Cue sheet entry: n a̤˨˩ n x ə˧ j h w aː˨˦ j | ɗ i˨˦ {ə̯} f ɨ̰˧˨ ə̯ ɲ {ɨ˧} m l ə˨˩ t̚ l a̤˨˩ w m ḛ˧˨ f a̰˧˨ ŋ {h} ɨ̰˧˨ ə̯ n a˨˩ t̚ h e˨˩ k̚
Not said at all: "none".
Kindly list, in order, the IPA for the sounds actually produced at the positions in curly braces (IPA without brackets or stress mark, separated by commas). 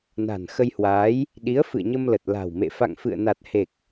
ə̯, ə˧, f